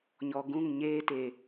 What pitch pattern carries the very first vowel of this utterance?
low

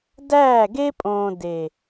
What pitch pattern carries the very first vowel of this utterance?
falling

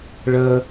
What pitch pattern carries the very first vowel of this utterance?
high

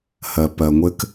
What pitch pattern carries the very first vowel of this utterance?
low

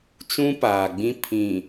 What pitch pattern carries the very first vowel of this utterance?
high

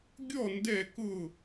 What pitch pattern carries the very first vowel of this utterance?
falling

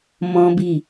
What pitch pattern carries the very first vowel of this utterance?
high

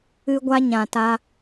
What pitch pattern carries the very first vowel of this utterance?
high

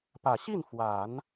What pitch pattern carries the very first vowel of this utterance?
low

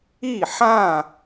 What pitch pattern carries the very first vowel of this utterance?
falling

